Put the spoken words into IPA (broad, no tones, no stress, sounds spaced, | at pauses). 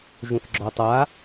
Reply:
ʒ ũ θ ɡ͡ǁ ɔ tˤ a